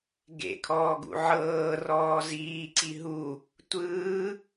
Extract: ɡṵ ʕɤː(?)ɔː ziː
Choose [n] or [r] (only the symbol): r